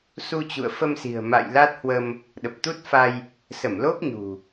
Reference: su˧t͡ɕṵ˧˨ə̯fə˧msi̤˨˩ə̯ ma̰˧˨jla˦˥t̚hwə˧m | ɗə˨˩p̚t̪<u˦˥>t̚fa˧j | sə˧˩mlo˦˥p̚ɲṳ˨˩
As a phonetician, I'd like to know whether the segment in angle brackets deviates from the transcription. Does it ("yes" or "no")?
no